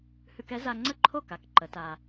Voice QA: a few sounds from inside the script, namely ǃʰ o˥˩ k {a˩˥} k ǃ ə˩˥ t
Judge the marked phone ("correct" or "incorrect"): correct